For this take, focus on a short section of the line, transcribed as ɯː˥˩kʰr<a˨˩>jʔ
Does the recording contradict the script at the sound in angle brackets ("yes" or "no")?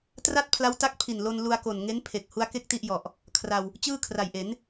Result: no